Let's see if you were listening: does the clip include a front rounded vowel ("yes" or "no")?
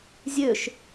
yes